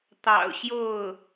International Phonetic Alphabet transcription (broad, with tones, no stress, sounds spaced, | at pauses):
t̪ ɑ̰˨˩ ʊ̯ ɕ j o˥˩ ʊ̯